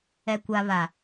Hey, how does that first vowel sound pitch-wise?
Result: low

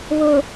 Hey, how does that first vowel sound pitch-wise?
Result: low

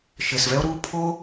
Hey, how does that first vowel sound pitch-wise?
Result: low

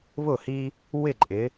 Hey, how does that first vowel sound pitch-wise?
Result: falling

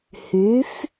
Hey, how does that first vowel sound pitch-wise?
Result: rising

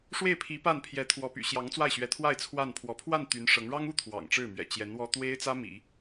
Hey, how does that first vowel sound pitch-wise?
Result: falling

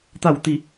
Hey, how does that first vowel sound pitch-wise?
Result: falling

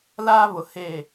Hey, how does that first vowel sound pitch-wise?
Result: high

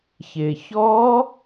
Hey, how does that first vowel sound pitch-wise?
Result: low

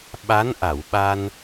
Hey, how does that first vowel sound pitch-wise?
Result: rising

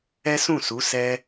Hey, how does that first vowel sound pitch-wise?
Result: high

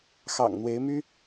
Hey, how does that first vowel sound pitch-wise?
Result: low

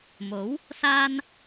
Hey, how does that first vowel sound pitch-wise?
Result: rising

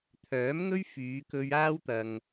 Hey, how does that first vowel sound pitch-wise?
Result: rising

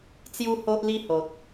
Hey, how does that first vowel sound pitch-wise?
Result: high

